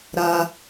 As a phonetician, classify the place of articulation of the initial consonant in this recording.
alveolar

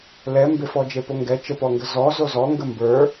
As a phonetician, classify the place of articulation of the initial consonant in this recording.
alveolar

